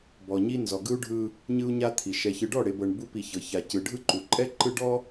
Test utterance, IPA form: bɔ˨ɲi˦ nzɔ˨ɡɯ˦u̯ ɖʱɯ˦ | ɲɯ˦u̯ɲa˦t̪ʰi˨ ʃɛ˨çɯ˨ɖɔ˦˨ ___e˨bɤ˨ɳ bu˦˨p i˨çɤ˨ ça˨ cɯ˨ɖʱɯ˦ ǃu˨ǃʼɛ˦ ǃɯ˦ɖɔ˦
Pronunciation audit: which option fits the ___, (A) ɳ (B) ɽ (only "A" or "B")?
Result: B